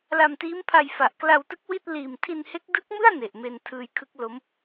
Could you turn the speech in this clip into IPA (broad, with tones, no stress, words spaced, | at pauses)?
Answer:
la˧mtiː˦˥mpʰa˧j fa˨˩ʔkla˧wtɯ˦˥k̚ wi˥˩t̚ liː˨˩m tʰi˧nhe˦˥k̚ dɯ˦˥k̚mɯ˥˩a̯ ne˨˩ʔ me˧ntʰɯː˧jkʰɯ˦˥k̚ lo˦˥m